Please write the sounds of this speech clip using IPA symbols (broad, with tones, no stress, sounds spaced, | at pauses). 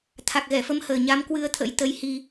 t̪ʰ a˨˩ k̚ ɣ ɛ˧˩ f ə˨˦ m h əː˨˩ ɲ a˨˦ m k w ɨ˧ ə̯ t̪ʰ ə̰˧˥ j t̪ ə˧ j h i˧